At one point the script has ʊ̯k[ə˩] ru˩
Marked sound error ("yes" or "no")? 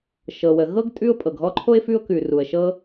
yes